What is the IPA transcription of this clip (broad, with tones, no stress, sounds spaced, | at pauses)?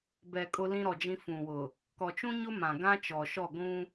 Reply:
b ɛ˨ kʼ ʊ˦ l ĩ˦ ɾ ɔ˨ d͡ʒ ĩ˦ f ũ˨ w ʊ˨ | k ɔ˨ t͡ʃ ũ˦ ɲ ʊ˦ m ã˨ ɡ ã˦ t͡ʃ ɔ˨ ʃ ɔ˦˨ ɡʷ ũ˦